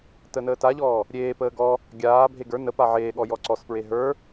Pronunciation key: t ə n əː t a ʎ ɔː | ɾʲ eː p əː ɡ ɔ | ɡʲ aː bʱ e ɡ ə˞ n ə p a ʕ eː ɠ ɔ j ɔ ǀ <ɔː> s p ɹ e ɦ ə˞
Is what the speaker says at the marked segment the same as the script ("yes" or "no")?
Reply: no